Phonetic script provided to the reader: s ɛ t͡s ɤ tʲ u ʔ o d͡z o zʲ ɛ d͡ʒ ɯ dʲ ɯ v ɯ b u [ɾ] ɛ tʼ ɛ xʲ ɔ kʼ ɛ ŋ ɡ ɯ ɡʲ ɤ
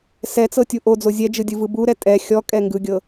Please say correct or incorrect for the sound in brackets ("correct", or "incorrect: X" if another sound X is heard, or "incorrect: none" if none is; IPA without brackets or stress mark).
correct